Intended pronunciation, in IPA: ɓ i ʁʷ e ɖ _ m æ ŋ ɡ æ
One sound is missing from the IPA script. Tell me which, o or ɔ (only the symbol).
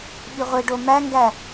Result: o